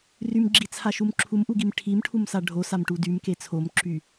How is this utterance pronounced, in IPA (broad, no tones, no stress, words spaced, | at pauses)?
rymɡ͡ǁit͡sʰaʃum ǁʰumʔuɡim ʈʰimʈʰumsa ɖʱosamʈu dymke t͡sʰomǁy